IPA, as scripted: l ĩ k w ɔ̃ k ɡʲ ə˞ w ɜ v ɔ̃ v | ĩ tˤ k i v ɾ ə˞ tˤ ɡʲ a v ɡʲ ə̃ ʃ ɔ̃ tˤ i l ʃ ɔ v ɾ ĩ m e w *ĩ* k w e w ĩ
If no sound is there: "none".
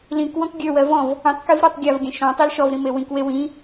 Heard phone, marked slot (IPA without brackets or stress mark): ĩ